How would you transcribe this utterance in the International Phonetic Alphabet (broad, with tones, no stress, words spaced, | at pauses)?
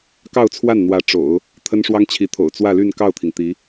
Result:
kɑ˥˧ʊ̯t͡sʰwa˥˩nn̪wä˧˥ ʈ͡ʂo̰˨˩˦ʊ̯ | t̪ʰə˥nʂwɑ˥ŋt͡ɕʰi˧˥t̪ʰo̰˨˩ʊ̯ t͡swä˥˧ly˥˧nkɑ˥˩ʊ̯t̪ʰi˩ŋ t̪i˧˥